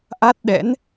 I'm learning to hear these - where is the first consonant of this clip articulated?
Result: throat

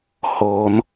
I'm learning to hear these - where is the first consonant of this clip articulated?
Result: throat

